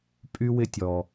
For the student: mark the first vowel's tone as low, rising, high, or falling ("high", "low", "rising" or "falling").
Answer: high